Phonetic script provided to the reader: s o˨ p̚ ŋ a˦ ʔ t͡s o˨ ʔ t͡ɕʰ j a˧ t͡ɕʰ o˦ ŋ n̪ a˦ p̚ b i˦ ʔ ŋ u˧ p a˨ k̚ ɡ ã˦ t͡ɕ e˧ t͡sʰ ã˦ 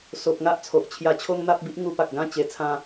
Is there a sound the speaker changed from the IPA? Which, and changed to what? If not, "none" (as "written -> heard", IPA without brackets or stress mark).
t͡s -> t͡sʰ